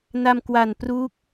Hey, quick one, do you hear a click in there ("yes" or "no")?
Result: no